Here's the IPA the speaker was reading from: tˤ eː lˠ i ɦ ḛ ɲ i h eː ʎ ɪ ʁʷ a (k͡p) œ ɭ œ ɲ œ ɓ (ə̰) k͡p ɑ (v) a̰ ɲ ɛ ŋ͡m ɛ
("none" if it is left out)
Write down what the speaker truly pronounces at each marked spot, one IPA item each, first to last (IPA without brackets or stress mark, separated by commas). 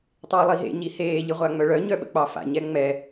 ŋ͡m, ə̰, f